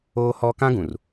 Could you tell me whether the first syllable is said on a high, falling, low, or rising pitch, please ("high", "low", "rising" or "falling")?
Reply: high